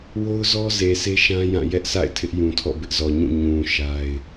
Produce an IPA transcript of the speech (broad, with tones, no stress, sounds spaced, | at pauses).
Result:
w o˦ ʊ̯ z ɔ˦ z e˨ s e˦ ʃ ã˦ j ã˦˨ j ɛ˦ ʔ sʰ a̰˦˨ ɪ̯ tʰ ɪ˦ ʔ j ũ˨ tʰ ɔ̰˦˨ b ɪ˦ ʔ z ɔ˨ ɲ ũ˦˨ ɲ ũ˨ ʃ a˦ ɪ̯